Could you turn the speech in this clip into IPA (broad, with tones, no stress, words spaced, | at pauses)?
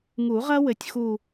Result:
ŋu˨˩˦ʁɐ˦˥ wɘ˨˦tʲxu˥˧